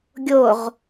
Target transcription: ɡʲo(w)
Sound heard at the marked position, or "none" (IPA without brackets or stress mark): ʁ